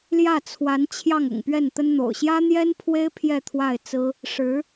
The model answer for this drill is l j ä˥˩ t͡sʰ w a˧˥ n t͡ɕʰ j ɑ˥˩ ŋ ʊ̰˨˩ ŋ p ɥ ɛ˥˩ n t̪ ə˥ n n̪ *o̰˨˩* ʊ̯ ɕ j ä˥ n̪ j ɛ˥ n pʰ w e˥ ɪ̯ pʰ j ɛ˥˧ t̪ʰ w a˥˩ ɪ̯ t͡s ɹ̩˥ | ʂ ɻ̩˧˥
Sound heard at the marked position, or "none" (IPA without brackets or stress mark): o̰˨˩